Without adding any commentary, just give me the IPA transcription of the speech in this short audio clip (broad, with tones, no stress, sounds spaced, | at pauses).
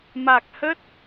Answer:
m a˨˩ k̚ h ə˦˥ t̚